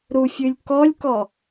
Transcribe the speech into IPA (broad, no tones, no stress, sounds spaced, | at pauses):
ɾ u fʲ ʉ lʲ k ɔ lʲ k ɔ